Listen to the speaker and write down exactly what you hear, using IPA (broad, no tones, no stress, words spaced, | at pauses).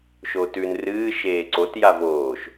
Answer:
ʃotʉn rɨː ʃeːǀot javoːʃ